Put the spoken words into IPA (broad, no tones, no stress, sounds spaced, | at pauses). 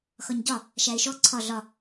x ɒ ɲ ɟ ɒ | ʃ æ ɪ̯ ʃ ɔ ǀʰ ɒ ɮ ɒ